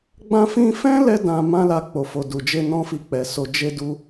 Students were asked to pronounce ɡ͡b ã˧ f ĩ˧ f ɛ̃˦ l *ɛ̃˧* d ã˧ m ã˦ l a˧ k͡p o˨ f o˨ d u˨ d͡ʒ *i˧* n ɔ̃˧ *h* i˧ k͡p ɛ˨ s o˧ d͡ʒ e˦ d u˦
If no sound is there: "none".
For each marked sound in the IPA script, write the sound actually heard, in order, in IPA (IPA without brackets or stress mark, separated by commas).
ɛ˧, e˧, f